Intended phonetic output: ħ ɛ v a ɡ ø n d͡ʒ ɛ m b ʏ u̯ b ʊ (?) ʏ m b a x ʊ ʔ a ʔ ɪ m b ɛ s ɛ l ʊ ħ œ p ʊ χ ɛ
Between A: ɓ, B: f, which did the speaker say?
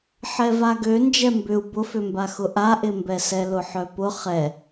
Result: B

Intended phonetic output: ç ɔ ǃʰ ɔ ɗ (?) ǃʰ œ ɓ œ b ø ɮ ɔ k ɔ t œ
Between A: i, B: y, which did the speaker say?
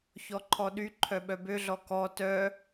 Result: B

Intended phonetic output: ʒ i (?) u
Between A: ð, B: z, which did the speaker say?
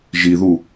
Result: A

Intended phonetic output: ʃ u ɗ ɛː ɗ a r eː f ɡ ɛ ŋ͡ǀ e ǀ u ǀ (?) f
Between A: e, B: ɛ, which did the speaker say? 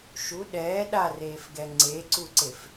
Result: A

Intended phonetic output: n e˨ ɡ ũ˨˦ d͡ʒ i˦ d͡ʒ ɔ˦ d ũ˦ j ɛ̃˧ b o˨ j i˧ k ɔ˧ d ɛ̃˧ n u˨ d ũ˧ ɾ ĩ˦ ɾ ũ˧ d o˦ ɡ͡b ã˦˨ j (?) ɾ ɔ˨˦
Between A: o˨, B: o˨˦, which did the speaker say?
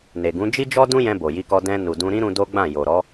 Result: A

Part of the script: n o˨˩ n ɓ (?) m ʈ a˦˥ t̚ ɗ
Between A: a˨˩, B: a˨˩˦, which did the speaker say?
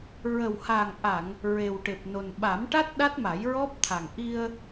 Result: B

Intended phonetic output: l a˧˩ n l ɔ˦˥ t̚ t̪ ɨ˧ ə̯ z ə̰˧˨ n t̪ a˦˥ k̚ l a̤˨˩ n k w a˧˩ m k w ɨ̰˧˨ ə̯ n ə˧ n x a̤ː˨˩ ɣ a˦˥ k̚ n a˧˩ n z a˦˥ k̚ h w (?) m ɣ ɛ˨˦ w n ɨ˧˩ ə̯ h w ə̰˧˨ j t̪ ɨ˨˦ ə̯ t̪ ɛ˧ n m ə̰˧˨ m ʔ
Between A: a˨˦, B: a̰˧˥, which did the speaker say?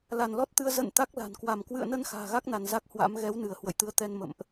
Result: B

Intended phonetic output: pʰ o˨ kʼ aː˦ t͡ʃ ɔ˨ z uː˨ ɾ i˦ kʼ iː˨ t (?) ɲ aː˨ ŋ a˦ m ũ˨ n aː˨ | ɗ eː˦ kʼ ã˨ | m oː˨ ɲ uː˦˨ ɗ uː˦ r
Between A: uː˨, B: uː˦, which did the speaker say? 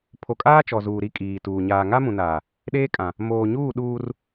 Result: A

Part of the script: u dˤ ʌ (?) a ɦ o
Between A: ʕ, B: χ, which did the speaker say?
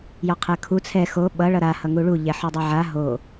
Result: A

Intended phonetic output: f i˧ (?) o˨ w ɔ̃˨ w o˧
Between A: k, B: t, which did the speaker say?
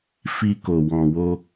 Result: A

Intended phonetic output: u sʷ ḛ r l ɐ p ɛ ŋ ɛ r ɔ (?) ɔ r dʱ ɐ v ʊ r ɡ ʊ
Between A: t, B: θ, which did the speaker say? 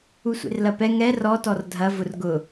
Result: A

